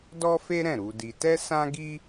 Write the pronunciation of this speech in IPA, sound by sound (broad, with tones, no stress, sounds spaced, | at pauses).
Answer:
d ɔ˦ f e˦ ɾ ɛ̃˦˨ ɾ u˧ d i˧ t ɛ˦ s ã˦ ɡ i˦